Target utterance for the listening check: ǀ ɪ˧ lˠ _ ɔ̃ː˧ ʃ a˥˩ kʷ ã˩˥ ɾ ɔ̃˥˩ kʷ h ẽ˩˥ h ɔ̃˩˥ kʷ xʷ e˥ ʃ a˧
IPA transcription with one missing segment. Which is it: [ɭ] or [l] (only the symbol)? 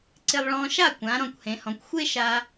ɭ